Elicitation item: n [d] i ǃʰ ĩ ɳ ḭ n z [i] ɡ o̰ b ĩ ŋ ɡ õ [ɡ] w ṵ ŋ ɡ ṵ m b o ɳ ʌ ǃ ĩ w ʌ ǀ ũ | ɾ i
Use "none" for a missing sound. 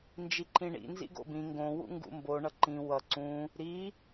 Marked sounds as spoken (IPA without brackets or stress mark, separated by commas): d͡ʒ, ḭ, none